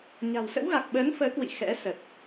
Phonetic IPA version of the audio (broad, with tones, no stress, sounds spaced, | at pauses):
ɲ a̤˨˩ w s ə̰˧˥ w ɣ a˨˩ k̚ ɓ əː˨˦ n f əː˨˦ k w ḭ˧˨ x ɛ̰˧˥ s ə˨˩ t̚